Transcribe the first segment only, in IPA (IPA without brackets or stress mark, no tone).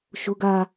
ʃ